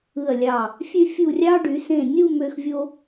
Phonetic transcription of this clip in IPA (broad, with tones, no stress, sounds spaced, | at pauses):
ɯ˧˩ ɐ̯ lʲ ɑ˧˩ | fʲ ø˥ fʲ u˥˧ rʲ ɑ˥ ɖ y˩˧ s ẽ˧˩ nʲ u˥˧ m ø˧ x vʲ o˧